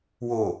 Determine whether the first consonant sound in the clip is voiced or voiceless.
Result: voiced